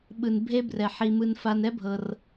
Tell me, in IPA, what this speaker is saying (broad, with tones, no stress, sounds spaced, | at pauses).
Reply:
ɓ ɯ˧ n bʱ e˦ b r ɛ˧ ħ i˧ m ɯ˧ n f a˧ n ɛ˦ bʱ ɤ˧ r